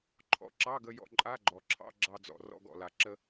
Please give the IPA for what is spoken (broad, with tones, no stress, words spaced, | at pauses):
ǃʰɔ̰˧ǁɑ˧˥˧ɡə˧ jɔ̰˧ǃʼa˧˥˧ɡ͡ǃɔ˩ǁʰɑ̰˧˥˧ ɡ͡ǁɑ˧d͡zɔ̰˩ rɔ̰˧ɡɔ̰˩la˩ ǁə˧